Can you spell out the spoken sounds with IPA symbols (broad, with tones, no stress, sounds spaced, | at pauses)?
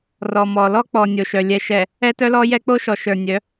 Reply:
r ɔ˨ m ɔ˨ l ɔ˦ k͡p ɔ˨ nʲ o˨ ʃ œ˨ lʲ ɛ˨ ʃ ɛ˨ | ɛ˦ t œ˦ l ɔ˦ j ɛ˦ k͡p o˦ ʃ ɔ˨ ʃ ə˞˨ nʲ œ˨˦